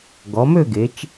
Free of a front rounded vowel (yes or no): no